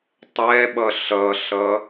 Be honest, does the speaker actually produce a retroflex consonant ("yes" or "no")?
no